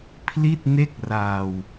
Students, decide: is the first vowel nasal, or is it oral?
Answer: oral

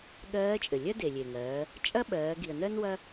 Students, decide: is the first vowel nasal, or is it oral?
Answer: oral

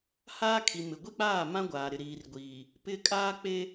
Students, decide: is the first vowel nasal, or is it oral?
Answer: oral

